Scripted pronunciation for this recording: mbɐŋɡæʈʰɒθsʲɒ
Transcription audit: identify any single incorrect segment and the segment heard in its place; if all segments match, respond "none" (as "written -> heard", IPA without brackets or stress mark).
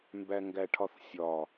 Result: ɐ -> æ